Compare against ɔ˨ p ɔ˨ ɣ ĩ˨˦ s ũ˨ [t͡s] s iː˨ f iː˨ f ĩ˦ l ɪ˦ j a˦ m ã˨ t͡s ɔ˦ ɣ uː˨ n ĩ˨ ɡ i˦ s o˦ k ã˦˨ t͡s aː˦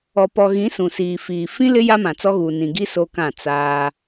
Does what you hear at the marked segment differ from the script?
yes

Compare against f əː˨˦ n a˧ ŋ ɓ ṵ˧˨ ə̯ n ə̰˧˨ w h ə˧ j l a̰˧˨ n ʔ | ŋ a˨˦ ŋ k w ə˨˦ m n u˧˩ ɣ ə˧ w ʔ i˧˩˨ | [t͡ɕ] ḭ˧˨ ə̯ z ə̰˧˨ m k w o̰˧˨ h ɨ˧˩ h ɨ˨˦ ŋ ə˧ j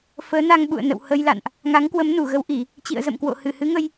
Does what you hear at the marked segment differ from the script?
no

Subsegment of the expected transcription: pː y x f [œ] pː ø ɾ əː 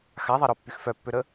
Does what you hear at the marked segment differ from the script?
no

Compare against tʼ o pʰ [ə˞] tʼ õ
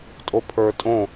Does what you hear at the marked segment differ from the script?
no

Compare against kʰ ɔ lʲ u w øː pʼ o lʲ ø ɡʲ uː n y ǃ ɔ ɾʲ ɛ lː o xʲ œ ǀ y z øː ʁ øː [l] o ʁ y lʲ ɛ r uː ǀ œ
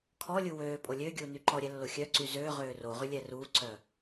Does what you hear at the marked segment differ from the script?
yes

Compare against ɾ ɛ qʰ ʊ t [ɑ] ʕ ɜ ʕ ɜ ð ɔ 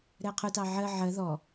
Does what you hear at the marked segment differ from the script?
no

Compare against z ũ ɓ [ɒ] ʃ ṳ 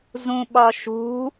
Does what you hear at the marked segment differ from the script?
no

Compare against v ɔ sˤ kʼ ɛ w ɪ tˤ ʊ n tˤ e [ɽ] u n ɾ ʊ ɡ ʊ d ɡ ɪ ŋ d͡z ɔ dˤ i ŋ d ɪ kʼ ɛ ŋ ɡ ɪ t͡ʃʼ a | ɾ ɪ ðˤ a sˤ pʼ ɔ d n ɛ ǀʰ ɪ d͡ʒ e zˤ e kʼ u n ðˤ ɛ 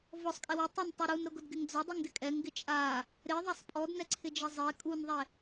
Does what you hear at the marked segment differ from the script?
yes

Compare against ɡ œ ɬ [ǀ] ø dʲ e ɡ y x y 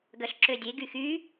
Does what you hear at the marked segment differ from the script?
yes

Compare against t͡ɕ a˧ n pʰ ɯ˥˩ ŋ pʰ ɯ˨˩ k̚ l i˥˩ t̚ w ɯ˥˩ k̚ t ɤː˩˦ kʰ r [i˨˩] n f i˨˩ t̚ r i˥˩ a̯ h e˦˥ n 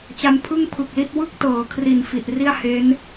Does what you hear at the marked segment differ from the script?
no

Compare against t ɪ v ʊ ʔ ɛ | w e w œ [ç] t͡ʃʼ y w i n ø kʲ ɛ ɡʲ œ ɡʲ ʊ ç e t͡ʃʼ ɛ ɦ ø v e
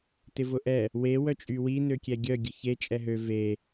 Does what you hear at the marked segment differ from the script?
yes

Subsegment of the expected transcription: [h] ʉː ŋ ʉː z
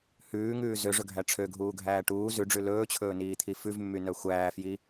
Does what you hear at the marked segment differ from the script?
no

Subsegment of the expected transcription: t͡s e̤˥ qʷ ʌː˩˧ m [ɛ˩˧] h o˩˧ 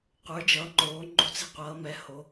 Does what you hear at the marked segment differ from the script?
no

